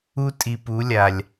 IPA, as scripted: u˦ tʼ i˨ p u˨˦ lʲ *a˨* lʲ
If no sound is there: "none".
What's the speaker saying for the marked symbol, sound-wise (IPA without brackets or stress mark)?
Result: a˨